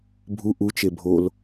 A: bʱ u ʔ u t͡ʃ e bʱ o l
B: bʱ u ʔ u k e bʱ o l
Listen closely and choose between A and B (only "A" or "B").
A